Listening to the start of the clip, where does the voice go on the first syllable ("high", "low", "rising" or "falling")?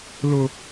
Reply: high